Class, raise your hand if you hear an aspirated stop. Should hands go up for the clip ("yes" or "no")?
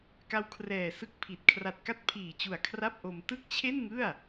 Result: yes